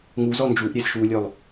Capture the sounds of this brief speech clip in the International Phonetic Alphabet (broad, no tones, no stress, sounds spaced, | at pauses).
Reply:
ŋ u z ɔ n d͡ʒ u ʔ ɾʲ e z ʃ u lʲ œ lˠ